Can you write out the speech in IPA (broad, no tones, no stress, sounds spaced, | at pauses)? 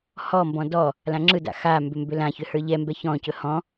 h ɔ m b ɔ̃ d ɔ | l ã ŋ͡ǁ ɯ d a̰ x a m b ʏ m b ʏ l ã ç ʏ h ə˞ ʎ ɛ m b ɛ ç ɔ̃ c ɵ h ɔ̃